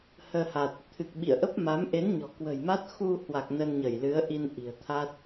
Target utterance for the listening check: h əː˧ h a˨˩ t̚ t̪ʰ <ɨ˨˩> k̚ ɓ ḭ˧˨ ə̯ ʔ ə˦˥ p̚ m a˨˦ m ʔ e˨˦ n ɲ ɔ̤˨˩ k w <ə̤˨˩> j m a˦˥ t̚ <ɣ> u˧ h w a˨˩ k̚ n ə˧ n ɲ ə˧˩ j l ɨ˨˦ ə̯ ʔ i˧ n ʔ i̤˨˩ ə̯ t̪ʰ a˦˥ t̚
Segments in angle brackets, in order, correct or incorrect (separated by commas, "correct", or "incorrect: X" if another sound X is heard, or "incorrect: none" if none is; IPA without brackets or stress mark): correct, correct, incorrect: x